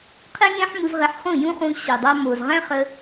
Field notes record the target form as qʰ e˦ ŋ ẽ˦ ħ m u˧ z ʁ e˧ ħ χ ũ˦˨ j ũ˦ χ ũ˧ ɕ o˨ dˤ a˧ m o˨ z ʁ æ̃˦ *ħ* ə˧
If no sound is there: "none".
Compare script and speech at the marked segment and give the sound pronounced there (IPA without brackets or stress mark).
χ